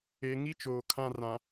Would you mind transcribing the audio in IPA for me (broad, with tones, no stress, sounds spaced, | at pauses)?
e˨ ŋ i˦ t͡ʃ oː˨ kʰ ã˦ r ã˨